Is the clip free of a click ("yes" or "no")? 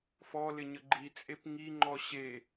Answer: no